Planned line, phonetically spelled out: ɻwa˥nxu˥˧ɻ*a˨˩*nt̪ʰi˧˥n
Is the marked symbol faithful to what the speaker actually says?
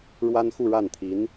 no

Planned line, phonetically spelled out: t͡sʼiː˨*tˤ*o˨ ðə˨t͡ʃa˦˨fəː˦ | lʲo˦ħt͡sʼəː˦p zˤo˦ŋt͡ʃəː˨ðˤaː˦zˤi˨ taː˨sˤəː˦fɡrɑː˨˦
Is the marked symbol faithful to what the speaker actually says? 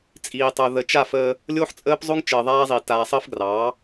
yes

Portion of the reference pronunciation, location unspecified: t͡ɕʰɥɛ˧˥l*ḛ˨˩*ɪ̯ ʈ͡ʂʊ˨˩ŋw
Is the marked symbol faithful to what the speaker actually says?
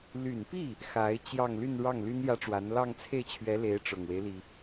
no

